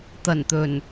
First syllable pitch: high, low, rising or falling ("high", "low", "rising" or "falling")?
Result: low